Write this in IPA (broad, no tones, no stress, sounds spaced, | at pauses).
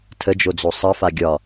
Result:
tʰ ə d͡ʒ o d͡z o sˤ ə f a ɡʲ ɒ